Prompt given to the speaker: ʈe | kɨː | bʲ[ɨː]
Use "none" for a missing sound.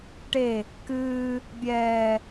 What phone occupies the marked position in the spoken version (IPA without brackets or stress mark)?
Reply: ɛː